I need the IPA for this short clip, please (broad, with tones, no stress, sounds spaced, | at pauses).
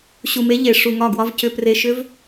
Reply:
ɕ u˧ m e˦ ʎ e˧ ʂ u˧ ŋ ɒ˦˨ ɡ w ɒ˦ v c ʏ˧ p r e˧ ʃ ʏ˦ v